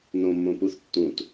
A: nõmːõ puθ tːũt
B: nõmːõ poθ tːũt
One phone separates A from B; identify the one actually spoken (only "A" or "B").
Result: A